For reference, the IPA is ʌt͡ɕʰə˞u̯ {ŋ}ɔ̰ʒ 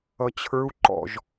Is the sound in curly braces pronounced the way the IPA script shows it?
no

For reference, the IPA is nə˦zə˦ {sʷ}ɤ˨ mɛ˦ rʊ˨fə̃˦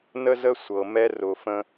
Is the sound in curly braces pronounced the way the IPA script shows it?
yes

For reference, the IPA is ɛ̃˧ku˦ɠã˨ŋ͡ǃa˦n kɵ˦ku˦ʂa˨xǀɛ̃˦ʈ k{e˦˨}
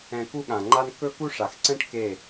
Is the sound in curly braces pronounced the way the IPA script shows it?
yes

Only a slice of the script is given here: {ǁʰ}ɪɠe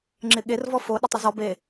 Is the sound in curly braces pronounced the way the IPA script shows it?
no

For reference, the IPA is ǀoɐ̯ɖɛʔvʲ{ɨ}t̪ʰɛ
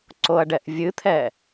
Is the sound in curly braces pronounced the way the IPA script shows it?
yes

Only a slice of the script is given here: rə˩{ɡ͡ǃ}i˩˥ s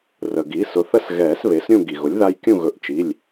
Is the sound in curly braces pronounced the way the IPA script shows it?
no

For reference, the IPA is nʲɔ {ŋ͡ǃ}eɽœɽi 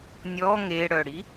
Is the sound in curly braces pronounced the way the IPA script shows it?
no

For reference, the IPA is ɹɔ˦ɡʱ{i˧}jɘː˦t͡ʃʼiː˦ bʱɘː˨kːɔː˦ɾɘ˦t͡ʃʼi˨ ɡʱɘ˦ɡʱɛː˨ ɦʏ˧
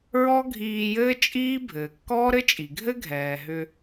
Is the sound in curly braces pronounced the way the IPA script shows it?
no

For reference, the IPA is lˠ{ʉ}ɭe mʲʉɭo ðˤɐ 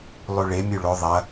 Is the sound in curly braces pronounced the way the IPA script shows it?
yes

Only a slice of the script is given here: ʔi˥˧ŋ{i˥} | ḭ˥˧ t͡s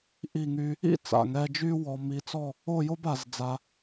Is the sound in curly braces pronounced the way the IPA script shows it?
no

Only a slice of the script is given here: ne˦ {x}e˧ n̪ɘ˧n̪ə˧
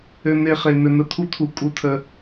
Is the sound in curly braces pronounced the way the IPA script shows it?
no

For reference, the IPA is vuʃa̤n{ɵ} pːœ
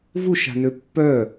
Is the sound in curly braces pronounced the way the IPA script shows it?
no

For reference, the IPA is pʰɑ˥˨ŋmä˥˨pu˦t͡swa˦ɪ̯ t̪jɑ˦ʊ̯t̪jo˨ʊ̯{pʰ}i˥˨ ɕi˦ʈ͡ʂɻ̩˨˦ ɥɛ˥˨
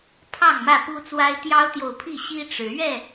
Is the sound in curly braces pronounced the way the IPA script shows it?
yes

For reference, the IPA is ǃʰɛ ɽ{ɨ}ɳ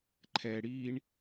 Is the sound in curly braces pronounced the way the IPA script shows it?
no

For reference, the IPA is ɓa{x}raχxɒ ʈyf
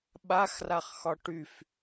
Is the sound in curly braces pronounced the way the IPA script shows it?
yes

